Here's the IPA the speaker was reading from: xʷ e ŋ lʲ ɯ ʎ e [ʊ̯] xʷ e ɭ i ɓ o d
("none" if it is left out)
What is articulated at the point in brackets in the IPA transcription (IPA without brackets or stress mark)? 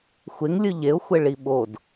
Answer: ʊ̯